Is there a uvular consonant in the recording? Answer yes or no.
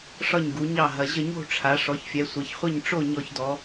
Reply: yes